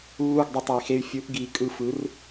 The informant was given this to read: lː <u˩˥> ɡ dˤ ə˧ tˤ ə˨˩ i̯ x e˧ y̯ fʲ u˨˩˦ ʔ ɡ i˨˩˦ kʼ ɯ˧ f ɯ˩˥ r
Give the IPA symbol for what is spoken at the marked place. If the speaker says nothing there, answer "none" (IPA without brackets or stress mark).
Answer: u˥˨